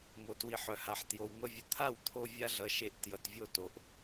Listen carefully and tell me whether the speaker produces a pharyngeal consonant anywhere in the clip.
yes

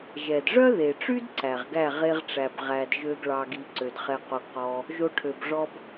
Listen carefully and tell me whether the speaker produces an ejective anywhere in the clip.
no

